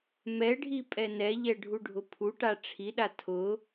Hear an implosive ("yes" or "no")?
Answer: yes